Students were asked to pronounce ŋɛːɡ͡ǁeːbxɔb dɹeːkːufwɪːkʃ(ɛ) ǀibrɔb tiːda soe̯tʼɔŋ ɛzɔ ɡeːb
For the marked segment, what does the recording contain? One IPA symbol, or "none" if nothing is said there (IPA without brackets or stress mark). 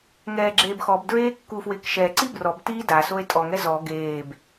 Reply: ɛ